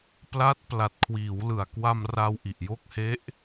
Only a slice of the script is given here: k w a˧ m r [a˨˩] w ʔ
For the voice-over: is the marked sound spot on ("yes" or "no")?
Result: no